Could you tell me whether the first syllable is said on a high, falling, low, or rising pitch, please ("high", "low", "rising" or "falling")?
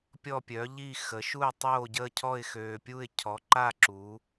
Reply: falling